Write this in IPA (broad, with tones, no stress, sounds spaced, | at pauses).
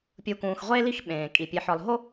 pʲ u˨ k ũː˨ x ʁʷ eː˦ l i˦ x ɓ ẽː˨ kʼ i˨ pʲ e˨ ħ ɒ˨ l ɦ o˦